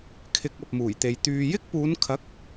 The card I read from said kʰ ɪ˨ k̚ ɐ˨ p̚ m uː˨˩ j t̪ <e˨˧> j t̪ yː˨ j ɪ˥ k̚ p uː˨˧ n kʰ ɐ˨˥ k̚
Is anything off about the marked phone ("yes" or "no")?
yes